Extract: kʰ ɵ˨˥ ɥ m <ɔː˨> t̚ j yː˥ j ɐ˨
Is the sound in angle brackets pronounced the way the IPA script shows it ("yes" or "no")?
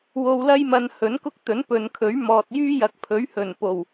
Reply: yes